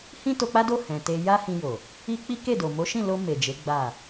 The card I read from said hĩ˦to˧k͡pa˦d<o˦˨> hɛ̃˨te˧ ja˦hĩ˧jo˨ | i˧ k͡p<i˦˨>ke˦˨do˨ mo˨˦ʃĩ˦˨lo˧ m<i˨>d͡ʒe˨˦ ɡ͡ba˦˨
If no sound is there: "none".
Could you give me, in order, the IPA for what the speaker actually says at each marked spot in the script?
o˦˨, i˦, e˨

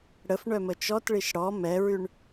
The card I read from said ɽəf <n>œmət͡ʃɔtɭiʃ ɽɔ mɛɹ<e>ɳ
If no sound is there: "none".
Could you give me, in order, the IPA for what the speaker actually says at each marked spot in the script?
ɳ, y

